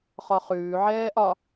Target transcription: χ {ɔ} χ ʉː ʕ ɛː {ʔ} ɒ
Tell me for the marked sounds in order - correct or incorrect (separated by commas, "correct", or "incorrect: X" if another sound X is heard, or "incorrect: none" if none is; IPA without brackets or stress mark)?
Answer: correct, correct